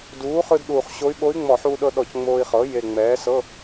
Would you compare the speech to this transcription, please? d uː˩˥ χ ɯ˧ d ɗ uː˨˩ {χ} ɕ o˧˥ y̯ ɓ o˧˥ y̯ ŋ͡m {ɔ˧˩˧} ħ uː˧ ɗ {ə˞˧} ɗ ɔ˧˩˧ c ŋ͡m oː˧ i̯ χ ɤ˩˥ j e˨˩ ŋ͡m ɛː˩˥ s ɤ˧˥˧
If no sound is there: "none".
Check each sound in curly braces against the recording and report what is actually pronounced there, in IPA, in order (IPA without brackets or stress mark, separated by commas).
χ, ɔ˧˩˧, ɤ˧